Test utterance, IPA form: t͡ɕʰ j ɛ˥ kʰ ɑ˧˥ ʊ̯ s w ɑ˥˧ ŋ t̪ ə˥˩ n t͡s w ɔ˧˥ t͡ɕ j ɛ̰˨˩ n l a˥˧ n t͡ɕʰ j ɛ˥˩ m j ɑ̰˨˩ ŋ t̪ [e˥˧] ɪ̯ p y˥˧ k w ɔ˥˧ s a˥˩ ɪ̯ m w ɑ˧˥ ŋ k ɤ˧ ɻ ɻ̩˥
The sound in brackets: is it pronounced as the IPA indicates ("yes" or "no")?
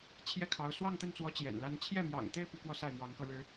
yes